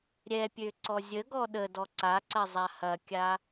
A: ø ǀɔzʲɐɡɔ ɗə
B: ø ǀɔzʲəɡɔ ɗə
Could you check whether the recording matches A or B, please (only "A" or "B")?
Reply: B